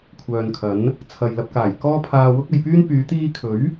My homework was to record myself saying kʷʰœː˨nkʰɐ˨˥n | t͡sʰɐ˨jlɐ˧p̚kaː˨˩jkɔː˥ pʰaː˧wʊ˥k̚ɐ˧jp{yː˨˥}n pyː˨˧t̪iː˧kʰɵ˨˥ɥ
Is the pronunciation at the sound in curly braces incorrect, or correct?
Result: incorrect: yː˥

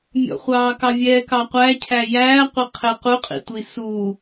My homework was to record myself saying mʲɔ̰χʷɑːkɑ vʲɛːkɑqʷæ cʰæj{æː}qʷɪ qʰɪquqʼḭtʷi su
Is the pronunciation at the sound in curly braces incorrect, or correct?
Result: correct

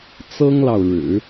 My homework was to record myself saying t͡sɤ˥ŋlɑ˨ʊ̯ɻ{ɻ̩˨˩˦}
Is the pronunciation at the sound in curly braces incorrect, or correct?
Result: correct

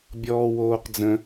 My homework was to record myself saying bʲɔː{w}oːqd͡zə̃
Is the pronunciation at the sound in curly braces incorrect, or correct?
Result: correct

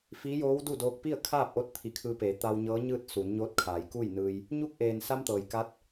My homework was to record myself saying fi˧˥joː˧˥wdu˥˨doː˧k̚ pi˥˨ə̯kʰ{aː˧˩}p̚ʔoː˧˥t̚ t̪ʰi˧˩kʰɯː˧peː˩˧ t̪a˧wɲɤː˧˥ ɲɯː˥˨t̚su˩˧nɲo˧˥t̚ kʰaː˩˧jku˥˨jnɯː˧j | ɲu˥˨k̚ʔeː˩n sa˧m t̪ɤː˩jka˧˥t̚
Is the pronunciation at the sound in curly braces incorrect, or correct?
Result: incorrect: aː˥˨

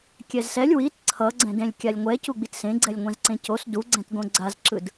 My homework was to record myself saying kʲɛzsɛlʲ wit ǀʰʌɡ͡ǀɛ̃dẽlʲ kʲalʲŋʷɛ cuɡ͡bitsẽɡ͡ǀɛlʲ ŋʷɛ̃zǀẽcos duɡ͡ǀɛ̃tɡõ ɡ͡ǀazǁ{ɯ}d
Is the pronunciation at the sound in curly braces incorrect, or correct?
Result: correct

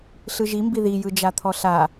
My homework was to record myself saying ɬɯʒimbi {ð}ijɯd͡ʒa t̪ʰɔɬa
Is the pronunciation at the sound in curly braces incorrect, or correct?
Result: correct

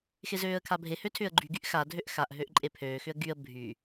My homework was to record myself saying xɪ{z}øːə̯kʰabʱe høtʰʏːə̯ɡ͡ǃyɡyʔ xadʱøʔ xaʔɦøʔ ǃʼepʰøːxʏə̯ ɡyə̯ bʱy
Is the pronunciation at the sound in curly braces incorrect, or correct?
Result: correct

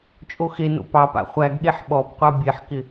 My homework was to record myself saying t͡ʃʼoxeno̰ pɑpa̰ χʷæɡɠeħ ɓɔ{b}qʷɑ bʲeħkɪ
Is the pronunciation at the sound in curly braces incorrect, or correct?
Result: correct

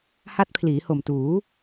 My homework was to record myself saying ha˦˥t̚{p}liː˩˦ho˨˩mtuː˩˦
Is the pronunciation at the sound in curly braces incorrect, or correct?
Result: incorrect: pʰ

